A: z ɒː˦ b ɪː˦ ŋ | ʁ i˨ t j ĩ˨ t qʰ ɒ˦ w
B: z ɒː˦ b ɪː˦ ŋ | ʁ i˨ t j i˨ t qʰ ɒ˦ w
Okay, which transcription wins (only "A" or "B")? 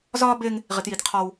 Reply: B